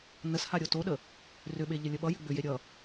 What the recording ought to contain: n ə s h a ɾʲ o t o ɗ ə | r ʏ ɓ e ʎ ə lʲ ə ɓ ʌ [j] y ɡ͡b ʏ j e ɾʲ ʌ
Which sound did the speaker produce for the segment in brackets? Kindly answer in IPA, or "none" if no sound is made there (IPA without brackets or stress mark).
j